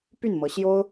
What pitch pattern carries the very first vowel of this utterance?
falling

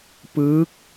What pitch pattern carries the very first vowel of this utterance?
rising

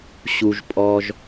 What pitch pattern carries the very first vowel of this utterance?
low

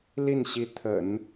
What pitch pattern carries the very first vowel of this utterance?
falling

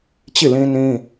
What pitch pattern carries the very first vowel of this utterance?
falling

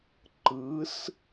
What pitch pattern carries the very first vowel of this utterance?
rising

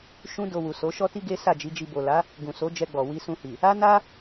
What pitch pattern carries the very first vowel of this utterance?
high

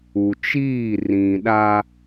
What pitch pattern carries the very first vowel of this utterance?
low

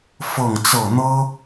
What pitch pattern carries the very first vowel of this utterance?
falling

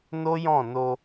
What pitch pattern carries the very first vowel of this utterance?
high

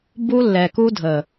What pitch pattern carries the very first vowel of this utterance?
high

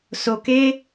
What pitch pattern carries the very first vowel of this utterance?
low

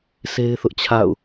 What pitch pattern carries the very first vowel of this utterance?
high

